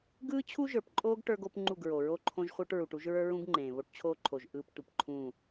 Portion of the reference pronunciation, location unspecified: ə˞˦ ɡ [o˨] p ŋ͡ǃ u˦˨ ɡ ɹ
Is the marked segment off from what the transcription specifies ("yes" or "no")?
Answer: yes